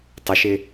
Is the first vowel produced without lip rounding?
yes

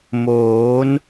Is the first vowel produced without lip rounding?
no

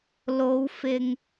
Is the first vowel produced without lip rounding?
no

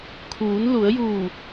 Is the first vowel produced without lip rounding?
no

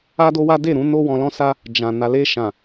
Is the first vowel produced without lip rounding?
yes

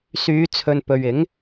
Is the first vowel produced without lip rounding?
no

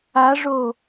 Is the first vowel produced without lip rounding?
yes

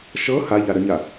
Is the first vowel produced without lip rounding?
yes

